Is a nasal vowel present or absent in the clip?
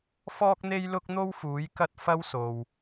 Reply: absent